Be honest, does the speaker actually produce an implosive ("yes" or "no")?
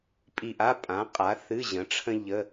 no